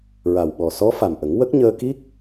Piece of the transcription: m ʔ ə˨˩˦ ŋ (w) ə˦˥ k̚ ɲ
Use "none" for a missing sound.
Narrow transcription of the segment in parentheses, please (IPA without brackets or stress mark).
w